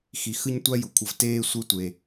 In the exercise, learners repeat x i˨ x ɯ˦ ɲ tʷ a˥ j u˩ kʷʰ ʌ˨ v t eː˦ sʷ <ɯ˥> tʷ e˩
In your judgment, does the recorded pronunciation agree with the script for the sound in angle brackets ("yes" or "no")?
no